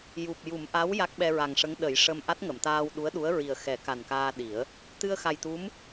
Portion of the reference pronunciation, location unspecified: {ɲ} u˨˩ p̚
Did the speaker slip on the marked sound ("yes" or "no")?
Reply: yes